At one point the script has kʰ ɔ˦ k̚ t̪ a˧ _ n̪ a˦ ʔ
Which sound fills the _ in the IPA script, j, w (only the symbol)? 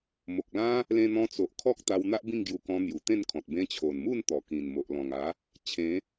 w